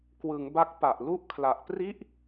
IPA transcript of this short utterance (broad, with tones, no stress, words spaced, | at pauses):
kwɯ˩˦ŋ ba˦˥k̚pa˨˩ʔlu˥˩ʔkʰla˨˩ʔ pri˦˥ʔ